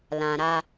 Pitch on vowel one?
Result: low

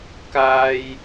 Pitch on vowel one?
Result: high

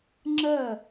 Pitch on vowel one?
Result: falling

